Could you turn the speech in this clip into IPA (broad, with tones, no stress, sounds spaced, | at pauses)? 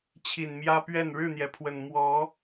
t͡ɕʰ i˨˩ n m j ä˦ p ɥ ɛ˥˨ n ɻ ɻ̩˥˨ n̪ j ɛ˩ pʰ w ə˨˩ n m w ɔ˨˦